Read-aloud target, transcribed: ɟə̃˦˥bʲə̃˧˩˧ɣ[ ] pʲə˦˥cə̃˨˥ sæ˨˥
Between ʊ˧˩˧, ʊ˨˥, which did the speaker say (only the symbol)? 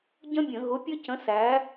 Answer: ʊ˨˥